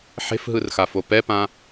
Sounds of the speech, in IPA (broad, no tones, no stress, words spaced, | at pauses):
ħe̤fɦɯrxafo pɛpã